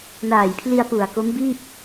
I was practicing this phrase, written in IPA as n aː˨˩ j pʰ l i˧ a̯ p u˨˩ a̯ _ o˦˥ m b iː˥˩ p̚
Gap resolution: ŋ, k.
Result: k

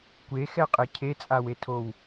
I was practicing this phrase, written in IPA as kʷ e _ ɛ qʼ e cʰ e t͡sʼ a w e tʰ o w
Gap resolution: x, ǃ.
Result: x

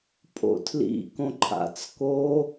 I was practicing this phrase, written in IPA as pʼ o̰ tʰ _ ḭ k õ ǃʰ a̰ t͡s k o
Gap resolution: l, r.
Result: l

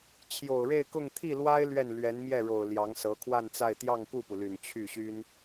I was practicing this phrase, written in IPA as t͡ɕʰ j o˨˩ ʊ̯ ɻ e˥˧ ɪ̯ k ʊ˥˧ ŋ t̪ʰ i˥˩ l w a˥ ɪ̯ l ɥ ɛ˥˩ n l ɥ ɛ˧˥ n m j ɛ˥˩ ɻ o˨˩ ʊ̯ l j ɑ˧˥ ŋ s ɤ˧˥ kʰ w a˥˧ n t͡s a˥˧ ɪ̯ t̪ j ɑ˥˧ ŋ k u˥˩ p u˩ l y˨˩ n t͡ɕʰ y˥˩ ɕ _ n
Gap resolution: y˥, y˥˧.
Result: y˥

